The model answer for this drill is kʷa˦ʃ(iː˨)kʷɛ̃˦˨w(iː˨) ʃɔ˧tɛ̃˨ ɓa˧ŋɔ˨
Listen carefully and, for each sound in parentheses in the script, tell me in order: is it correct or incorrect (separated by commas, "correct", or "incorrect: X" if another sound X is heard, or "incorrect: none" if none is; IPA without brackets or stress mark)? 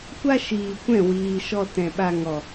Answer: correct, correct